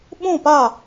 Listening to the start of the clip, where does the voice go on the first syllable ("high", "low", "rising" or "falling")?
falling